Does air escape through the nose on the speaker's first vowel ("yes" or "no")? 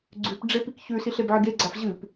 no